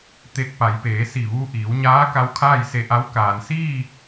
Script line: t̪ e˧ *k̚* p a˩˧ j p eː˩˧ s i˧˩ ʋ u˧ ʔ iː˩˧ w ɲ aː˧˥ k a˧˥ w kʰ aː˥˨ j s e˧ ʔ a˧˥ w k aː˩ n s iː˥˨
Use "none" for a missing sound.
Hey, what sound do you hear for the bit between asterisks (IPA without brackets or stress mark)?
k̚